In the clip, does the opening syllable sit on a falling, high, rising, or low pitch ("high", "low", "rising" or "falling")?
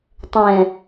low